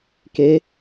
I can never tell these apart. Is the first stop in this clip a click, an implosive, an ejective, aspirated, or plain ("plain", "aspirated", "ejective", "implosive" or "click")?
plain